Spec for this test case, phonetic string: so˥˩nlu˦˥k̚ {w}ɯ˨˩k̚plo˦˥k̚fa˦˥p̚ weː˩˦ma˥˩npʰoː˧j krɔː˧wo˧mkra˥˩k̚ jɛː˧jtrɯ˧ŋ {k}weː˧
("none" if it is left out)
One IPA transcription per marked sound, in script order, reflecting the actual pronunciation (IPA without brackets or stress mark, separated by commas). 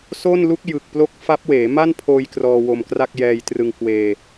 j, k